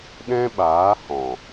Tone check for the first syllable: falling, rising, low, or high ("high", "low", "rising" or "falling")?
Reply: high